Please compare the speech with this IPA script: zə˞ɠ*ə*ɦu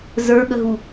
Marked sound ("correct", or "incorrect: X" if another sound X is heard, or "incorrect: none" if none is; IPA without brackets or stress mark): correct